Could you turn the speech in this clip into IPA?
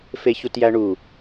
f e ç u t j æ ɳ u

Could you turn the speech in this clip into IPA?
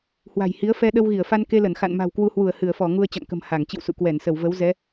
h w a̤˨˩ j h i˨˦ ə̯ f ɛ˧ ɗ ə˧ w ɣ i˧˩ ə̯ f a˧ n k e˧ l ə˧˩ n x a̰˧˨ n m a̤˨˩ w k w u˧ h w u˧˩ ə̯ h ɨ˧˩ ə̯ f ɔ˧˩ ŋ u˧ ə̯ t͡ɕ a̰˧˨ ŋ k ə̤˨˩ m h a˧˩ ŋ t͡ɕ ḭ˧˨ w s ṵ˧˨ k w ɛ˧˩ n s ə˧˩ w v ə˨˦ w z ɛ˨˦

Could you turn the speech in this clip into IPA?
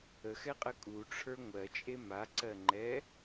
ə x ɛ qʼ ə kʼ u ʈ͡ʂʰ ə˞ ŋʷ ɜ t͡ʃʼ e m a ǀ ɜ ŋ͡ǃ ɛ

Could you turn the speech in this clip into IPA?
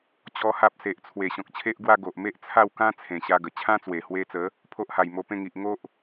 t͡ɕ ɔ˦ h a˦ p̚ s e˨ ʔ t͡sʰ w e˨˩ ɕ ɔ̃˨ k̚ t͡ɕʰ e˦ ʔ ɡ w a˥˧ ɡ o˨ ʔ m e˦ ʔ t͡sʰ a˥˧ w k ã˦ t͡sʰ ẽ˨˩ ɕ a˧ ɡ ə˨˩ t͡ɕʰ ã˦ t͡s w e˨˩ h w e˧ t͡s ə˨˦ | pʰ o˦ ʔ h a˨˩ j m o˧ p ẽ˥˧ ŋ i˨ ʔ ŋ o˦ ʔ

